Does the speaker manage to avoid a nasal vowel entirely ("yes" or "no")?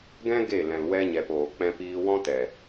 no